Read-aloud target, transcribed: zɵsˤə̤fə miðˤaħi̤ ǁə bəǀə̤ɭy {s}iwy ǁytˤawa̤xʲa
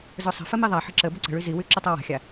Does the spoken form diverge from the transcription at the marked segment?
yes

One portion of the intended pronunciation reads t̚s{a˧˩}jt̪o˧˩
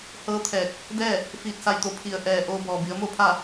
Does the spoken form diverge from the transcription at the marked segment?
no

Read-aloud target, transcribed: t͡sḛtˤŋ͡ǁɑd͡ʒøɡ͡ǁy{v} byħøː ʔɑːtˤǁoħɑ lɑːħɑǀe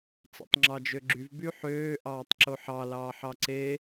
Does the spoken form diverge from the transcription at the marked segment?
no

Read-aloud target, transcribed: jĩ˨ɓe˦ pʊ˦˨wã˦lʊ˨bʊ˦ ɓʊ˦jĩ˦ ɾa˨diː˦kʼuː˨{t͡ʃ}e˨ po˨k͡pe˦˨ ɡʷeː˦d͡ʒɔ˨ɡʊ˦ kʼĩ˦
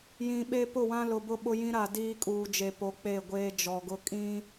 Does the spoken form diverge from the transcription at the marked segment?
yes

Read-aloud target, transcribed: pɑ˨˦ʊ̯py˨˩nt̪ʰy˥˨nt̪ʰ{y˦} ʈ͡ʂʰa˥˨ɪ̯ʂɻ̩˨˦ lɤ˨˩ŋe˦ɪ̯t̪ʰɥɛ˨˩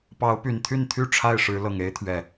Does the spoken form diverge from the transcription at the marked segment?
yes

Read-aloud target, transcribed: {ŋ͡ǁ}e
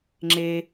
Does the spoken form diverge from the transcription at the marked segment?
no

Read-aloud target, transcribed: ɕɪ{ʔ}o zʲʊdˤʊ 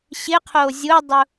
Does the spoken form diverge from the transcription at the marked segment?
yes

